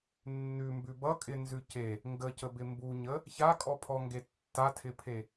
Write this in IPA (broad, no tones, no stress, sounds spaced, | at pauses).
nː ʉ m b ʉ b ʌ kʼ ɪ n z ʉ c e | ŋ ɡ ə c ə b ɪ m b u ɲ ə | ç a kʼ ɔ pʰ ɔ ŋ ɡ e tː a tʰ ɪ pʰ e